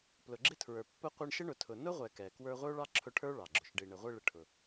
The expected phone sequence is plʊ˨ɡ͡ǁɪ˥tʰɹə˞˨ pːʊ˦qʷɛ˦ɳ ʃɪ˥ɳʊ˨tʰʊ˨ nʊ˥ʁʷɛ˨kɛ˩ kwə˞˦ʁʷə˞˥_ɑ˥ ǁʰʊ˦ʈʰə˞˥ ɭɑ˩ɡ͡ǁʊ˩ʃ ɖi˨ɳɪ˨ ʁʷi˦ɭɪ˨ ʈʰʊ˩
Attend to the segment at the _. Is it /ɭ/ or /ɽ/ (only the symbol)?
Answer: ɭ